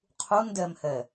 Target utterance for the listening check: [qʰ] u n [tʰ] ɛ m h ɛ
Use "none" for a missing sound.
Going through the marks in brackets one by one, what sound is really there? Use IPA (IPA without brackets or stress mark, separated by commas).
qʰ, d